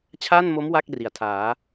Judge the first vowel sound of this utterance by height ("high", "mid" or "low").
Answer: low